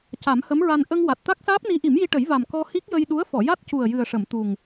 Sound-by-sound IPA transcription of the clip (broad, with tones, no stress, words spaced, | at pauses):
ca˨˩˦mhə˧˥mɹa˧n ʔə˧ŋ wa˨˩t̚ t̪a˦˥k̚saː˦˥p̚ni˧˥ ʔi˨˩˦mji˧ʈə˨˩˦j va˨˩m kɔ˧hi˦˥k̚ jə˧jɗu˧˥ə̯ fɔ˨˩˨ja˦˥t̚cu˨˩ə̯ jɨ˨˩ə̯ʂə˨˩˨m t̪u˨˩ŋ